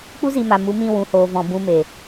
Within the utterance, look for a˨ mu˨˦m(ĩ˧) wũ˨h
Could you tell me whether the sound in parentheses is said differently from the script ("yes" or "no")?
no